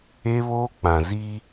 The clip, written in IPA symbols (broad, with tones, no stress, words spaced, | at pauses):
e˦βoː˦k͡pã˨zi˦